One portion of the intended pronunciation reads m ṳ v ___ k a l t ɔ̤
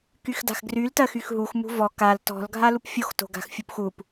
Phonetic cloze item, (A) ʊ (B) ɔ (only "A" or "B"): B